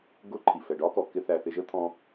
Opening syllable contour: high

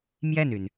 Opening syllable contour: falling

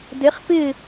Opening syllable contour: rising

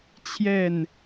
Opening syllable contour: falling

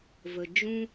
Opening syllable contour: low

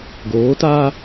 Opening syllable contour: rising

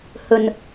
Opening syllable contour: low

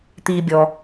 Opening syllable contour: low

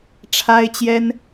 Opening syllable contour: high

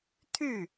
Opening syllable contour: falling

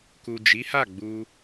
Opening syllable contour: low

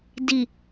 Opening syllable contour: low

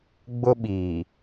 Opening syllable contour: high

